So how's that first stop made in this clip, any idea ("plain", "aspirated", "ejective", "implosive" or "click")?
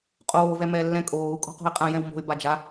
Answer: ejective